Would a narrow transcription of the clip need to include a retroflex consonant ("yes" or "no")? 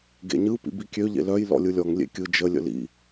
no